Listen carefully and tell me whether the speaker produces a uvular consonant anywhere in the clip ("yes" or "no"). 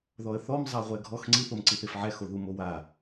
yes